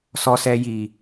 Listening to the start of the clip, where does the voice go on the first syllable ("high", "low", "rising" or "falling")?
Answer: low